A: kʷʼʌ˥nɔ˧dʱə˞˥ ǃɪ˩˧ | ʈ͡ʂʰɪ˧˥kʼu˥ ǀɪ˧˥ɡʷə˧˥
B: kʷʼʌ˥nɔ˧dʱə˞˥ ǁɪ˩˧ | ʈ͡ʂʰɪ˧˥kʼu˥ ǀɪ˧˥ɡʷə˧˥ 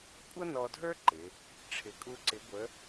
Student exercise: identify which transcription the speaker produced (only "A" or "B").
A